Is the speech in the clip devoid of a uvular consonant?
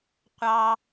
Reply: no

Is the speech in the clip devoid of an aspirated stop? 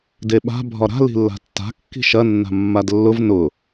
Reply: yes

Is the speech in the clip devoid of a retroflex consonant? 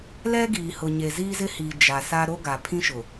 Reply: yes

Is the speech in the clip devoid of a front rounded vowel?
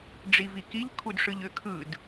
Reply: no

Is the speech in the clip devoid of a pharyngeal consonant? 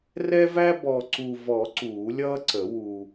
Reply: yes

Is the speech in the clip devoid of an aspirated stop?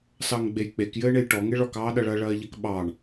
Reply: yes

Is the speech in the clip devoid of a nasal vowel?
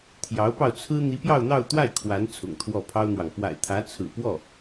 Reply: yes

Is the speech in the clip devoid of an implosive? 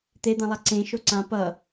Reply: yes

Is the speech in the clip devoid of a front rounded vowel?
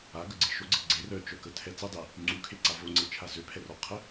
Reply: no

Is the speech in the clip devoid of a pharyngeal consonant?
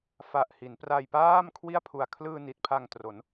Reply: yes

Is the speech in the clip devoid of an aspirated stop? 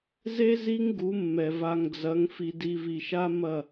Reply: yes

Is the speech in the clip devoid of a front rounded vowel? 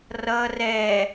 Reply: yes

